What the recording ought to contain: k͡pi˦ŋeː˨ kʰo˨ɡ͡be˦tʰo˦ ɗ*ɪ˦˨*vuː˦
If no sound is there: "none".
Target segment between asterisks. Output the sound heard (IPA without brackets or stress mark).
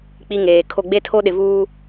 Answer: ɪ˨